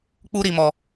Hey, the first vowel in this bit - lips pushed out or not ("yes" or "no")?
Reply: yes